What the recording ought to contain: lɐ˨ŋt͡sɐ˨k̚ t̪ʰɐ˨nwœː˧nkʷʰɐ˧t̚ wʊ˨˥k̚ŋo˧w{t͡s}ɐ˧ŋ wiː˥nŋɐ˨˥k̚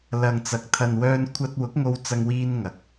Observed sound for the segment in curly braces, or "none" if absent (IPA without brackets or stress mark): t͡s